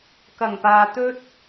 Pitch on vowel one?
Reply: low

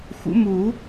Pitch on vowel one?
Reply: rising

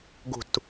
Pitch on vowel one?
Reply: falling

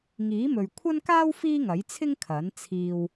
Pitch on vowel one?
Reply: rising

